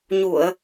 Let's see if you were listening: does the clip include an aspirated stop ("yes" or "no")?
no